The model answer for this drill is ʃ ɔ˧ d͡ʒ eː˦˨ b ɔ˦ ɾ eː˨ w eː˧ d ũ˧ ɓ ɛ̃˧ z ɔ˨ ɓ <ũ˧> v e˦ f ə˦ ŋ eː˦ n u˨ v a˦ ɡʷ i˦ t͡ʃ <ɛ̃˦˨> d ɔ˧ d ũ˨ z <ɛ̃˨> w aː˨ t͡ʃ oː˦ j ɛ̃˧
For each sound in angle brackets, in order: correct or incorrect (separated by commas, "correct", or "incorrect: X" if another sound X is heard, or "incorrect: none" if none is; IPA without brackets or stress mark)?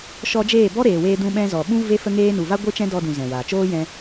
incorrect: ũ˦, incorrect: ɛ̃˦, correct